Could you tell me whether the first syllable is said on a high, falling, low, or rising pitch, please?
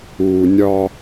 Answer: low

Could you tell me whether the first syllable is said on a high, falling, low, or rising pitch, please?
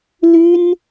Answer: high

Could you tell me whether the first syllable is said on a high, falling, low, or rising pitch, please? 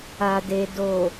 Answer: low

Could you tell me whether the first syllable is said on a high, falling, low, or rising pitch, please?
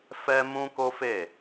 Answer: high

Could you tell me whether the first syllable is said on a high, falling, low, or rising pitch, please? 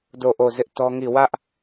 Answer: falling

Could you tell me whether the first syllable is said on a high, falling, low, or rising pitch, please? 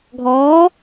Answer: rising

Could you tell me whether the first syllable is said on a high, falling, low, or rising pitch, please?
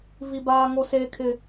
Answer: high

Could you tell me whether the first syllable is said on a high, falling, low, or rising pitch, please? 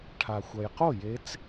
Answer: low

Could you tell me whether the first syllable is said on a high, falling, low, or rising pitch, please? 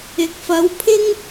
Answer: rising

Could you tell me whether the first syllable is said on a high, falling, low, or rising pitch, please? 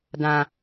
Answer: low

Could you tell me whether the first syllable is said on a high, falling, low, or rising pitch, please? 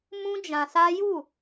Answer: high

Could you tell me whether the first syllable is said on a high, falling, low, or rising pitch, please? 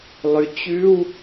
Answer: low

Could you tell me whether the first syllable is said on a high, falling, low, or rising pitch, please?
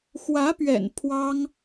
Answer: rising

